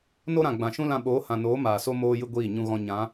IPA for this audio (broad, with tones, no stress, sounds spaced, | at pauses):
n o˦ ɾ ã˨ ɡ͡b ã˨ ʃ ũ˦ l ã˧ ɓ oː˨˦ h ã˨ n oː˨˦ m aː˨ s o˦ m oː˦ j ɨ˦ ɡʷ iː˦˨ ɲ ũ˨ ɣ ɔ̃˨ ɲ ã˨˦